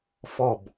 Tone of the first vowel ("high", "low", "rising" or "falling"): falling